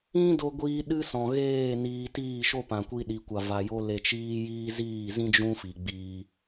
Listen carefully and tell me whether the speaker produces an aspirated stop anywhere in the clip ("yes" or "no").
no